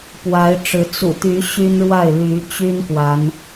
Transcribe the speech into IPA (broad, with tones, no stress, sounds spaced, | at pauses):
p w a˨˦ ɪ̯ ʈ͡ʂ ɻ̩˨˦ t͡s ṵ˨˩ t̪ y˨˦ ɕ y˦ n ɻ w a˥˨ ɪ̯ l y˨˦ t͡ɕ y˦ n k w a˨˦ n